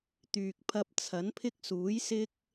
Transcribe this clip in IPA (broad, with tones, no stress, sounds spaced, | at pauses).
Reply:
t̪ yː˨ k̚ pʰ ɐ˧ p̚ t͡sʰ ɐ˨˥ n pʰ ɪ˥ k̚ s uː˨˥ j s ɪ˥ k̚